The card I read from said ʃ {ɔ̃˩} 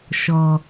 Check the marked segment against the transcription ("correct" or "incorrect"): incorrect